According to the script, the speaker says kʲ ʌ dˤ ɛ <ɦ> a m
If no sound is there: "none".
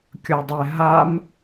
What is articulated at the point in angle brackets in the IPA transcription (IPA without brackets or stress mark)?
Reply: ɦ